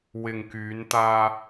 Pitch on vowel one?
low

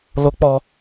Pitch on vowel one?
high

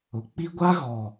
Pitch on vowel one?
low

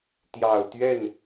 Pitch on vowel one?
low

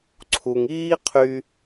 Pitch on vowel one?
low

